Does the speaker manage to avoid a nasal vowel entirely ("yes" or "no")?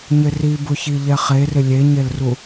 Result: yes